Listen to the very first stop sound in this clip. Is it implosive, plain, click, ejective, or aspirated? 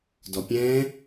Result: plain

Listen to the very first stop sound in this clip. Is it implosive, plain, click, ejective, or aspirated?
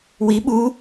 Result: implosive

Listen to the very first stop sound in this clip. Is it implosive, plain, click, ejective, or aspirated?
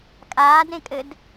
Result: ejective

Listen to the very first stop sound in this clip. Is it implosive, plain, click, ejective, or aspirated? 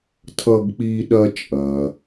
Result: aspirated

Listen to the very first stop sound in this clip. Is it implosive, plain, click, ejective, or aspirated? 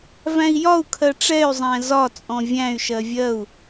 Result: aspirated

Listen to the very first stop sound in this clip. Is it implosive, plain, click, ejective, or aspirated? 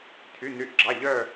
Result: aspirated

